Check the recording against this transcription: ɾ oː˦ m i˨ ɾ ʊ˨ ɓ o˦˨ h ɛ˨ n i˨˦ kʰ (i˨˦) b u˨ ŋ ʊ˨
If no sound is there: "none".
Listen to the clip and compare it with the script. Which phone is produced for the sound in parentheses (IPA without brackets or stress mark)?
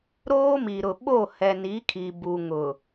i˨